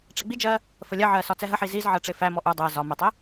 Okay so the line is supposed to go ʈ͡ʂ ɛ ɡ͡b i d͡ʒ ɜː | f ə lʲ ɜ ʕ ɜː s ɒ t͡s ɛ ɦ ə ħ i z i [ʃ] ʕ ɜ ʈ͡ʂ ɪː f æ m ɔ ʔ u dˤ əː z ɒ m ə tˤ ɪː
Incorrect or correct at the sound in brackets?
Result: incorrect: z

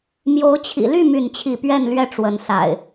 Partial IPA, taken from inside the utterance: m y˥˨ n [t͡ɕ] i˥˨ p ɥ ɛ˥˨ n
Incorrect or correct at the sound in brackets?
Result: incorrect: t͡ɕʰ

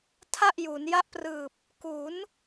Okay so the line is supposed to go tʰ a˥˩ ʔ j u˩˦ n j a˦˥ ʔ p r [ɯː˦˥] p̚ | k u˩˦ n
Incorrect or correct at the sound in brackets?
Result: incorrect: ɯː˨˩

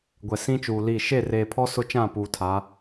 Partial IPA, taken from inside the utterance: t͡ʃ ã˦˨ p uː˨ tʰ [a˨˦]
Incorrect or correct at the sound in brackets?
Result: correct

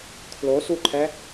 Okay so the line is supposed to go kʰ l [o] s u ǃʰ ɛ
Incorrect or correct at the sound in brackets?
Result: correct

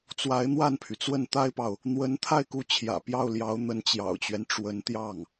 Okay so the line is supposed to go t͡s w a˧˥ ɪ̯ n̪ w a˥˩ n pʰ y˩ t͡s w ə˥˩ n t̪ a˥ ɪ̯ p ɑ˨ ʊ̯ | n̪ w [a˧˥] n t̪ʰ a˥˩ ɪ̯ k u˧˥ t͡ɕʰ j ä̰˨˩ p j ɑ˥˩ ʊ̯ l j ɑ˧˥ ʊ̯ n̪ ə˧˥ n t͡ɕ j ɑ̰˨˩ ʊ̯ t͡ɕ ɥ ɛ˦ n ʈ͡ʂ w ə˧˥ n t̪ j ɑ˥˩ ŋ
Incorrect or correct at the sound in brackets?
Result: incorrect: ə˧˥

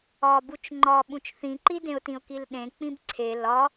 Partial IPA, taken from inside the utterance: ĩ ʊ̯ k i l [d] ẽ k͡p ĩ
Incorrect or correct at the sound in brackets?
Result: incorrect: ɗ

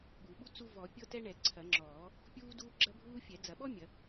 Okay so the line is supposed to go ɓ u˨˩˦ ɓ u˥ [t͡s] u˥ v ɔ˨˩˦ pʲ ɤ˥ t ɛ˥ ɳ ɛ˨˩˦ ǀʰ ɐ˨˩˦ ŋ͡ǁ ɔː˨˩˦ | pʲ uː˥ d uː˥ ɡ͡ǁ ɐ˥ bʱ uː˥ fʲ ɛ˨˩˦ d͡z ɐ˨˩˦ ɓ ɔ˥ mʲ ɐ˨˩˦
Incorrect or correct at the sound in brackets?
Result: correct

